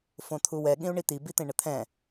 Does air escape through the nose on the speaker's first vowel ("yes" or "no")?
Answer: yes